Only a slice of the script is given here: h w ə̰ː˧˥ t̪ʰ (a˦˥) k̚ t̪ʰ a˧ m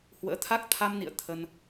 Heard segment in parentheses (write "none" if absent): a˦˥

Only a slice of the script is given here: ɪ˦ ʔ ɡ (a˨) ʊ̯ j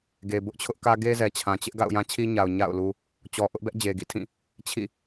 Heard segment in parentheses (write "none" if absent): a̰˦˨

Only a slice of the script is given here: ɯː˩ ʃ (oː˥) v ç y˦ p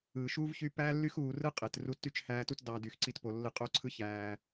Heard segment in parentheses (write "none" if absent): uː˥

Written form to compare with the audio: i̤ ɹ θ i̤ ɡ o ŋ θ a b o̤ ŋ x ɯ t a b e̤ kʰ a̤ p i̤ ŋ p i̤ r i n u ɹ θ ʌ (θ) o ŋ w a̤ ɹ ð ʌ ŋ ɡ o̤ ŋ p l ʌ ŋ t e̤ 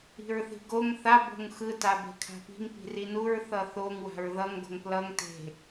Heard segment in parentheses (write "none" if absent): θ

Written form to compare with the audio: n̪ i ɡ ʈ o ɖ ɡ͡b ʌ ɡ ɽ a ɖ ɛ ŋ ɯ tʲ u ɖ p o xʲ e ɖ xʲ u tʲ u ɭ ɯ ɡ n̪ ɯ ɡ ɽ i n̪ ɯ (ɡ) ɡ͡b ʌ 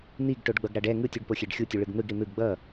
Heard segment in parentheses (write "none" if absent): ɡ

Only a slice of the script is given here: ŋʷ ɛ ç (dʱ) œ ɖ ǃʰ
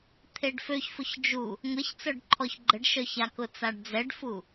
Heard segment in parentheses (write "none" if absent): t͡s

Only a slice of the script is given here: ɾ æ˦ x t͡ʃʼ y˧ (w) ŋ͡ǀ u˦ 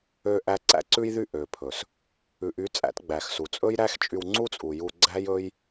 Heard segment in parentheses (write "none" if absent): w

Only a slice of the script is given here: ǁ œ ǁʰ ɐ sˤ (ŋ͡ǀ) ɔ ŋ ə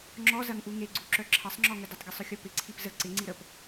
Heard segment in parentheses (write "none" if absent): ŋ͡ǁ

